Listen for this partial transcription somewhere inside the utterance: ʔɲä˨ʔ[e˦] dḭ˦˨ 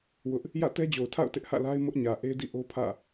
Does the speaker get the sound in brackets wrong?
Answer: no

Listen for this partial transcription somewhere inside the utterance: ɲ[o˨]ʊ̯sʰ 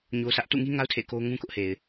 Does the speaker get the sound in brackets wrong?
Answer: yes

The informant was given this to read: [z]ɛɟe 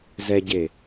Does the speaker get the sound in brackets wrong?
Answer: no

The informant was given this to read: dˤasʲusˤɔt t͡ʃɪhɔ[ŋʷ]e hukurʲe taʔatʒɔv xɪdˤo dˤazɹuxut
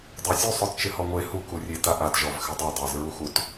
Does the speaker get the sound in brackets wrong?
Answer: no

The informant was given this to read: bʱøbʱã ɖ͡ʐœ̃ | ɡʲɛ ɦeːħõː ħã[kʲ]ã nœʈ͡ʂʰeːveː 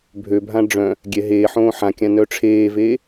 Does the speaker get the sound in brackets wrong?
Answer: no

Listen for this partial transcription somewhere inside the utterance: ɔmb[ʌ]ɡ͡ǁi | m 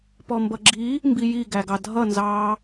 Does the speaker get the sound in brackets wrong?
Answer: no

